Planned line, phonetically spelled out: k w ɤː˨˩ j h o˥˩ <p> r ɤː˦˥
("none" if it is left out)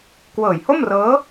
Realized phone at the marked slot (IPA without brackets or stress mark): m